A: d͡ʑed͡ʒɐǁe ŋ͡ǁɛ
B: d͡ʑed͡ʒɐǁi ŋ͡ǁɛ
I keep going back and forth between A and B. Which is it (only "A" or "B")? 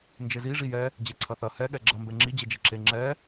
A